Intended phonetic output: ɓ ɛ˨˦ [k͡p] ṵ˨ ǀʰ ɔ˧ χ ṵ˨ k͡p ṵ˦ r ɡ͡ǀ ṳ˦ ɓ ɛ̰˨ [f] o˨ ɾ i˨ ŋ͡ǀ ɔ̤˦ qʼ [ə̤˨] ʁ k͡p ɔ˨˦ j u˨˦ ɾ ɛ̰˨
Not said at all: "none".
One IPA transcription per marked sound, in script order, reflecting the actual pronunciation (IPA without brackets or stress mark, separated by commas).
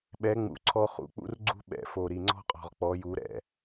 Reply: ŋ͡m, f, ɔ̤˨